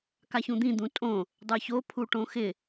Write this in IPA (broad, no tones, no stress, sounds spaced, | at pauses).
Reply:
k a ç ũ d̪ ĩ d̪ ũ tʼ õ | dˤ ə˞ ç o pʰ u ʈ õ x ɪ